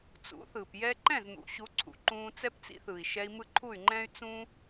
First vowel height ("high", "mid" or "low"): high